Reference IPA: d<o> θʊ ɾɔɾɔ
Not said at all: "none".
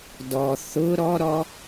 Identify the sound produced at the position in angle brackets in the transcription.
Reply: ɔ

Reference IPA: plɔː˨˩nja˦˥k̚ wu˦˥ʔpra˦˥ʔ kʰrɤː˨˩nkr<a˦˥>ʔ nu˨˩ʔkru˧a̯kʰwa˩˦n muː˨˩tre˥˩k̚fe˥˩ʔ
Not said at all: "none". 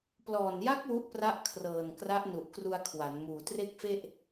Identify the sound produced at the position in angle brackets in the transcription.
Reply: a˦˥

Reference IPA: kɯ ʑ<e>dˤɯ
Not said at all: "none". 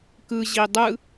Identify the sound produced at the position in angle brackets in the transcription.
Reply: i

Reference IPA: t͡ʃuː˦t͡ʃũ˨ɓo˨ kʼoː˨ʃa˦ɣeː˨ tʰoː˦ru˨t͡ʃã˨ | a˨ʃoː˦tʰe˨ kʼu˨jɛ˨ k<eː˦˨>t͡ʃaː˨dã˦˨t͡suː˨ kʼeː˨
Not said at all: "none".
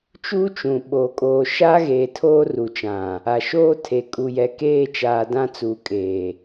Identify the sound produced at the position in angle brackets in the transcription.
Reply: eː˦˨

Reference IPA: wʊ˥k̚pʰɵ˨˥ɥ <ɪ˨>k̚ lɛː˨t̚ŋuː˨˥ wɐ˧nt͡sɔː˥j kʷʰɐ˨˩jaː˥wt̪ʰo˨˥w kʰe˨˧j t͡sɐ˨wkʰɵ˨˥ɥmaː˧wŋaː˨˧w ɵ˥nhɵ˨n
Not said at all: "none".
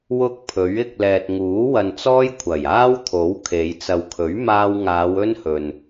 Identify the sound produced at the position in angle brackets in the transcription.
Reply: ɪ˧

